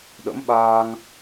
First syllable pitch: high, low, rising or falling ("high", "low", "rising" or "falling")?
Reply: rising